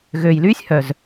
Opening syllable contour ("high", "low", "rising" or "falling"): low